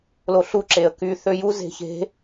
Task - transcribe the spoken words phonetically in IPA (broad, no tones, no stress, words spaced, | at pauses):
loɬu ǁeə̯ky θøju ze̤çe̤